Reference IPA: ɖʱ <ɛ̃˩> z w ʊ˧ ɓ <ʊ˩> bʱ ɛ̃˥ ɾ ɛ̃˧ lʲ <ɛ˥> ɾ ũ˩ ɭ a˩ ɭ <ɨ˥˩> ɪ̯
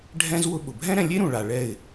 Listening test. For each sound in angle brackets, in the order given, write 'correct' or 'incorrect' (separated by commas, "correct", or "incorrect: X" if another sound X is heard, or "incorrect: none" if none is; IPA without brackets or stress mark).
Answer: incorrect: ɛ̃˥, correct, incorrect: e˥, incorrect: ɛ˥˩